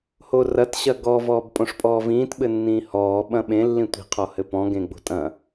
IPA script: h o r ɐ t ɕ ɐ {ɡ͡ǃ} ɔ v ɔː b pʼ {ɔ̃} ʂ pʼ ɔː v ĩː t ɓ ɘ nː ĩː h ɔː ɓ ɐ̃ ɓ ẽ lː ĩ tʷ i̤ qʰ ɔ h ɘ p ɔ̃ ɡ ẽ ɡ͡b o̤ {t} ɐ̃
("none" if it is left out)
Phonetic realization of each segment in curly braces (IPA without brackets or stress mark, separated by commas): ɡ, õ, tʼ